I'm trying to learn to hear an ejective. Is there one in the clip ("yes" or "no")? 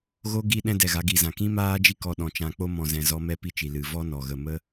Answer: no